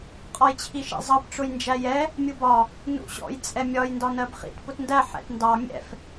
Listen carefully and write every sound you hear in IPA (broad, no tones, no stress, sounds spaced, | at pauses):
qʼ ɒ j t͡ɕʰ i ʃ ḭ zˤ ɑ p ʈ͡ʂ ʊ j n d͡ʒ æ j ɛ | mʲ u b ɒ | n ṵ ɕ ɔ̰ j t͡sʼ ɛ mʲ ɒ j n d ɒ n ɜ b χ ḭ t p ʊ t n d æ ħ ɛ̰ t n d ɑ mʲ ɛ̰ f